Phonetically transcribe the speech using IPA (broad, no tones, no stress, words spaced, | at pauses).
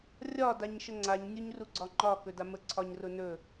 rʲɒ daɲʃəŋ͡ǀaɲ nʲuɲruɡ͡ǀɒŋ͡ǃɒ kɵdamə ǀʰɒɲrʊnɵ